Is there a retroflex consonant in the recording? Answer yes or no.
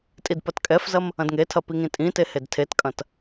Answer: no